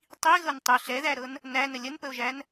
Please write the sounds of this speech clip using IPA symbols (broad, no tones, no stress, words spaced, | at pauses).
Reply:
tˤiɣɤn tˤʏ ɬɛðæɾɤn | nænə lʲənpəo̯ʒæn